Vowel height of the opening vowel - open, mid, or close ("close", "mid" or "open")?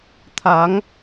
open